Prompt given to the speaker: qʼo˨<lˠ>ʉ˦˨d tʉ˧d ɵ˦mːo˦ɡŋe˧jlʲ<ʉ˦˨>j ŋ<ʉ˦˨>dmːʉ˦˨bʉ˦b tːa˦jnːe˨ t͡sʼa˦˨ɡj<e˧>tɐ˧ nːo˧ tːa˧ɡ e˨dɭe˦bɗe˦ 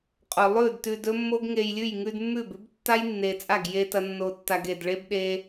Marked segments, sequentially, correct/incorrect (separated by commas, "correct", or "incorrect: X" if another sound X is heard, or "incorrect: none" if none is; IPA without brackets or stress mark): correct, correct, incorrect: ʉ˧, correct